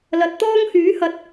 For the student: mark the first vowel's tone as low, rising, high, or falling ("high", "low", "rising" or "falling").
rising